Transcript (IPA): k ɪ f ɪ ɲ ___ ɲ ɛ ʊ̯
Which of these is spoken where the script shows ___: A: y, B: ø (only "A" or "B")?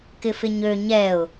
B